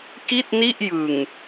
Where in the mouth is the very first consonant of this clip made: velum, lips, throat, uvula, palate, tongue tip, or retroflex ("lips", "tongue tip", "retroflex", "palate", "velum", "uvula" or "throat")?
velum